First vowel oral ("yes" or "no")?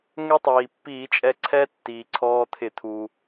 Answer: yes